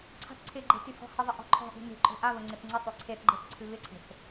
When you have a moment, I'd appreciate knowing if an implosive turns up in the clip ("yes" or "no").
no